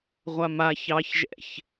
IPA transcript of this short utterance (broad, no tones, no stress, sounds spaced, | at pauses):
ʁʷ a m a ç ɑ ç ʒ ɛ̰ ç